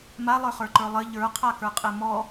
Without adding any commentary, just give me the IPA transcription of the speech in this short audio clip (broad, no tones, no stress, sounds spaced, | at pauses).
m a lˠ ə˞ χ ə˞ ǃ ə˞ lˠ ɘ ʎ ə˞ qʰ a k ə˞ qʼ e m ɔ